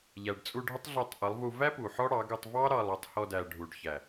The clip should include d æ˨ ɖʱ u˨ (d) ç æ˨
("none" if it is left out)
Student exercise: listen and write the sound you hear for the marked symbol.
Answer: ɖ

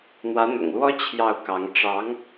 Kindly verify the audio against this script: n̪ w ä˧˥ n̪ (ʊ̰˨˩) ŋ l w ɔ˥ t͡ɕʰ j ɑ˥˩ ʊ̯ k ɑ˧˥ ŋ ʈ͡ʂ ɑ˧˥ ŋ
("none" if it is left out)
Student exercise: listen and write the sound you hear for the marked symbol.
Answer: ʊ̰˨˩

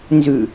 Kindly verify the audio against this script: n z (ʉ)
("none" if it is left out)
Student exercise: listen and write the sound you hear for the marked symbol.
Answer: ʉ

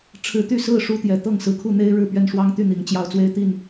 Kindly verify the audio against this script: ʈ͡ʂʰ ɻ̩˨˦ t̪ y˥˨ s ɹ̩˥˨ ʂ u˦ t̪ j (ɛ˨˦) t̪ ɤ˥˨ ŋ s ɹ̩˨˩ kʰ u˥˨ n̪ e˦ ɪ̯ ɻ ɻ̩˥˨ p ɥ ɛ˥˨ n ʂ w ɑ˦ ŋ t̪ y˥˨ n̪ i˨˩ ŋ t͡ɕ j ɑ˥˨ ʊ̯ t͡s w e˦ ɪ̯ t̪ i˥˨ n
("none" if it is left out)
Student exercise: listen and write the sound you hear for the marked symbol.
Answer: ɛ˨˦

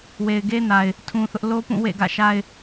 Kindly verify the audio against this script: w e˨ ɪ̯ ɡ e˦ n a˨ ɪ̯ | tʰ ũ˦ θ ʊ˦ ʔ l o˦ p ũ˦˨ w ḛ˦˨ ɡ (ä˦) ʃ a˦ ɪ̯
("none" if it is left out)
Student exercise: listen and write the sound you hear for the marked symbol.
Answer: ä̰˦˨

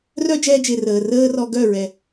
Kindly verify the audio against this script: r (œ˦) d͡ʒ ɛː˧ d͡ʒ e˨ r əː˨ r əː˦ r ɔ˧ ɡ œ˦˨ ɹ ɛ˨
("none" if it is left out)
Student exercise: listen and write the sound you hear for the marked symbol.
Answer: œ˦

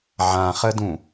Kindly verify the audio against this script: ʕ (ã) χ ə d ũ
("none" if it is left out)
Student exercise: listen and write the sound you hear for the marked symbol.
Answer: ã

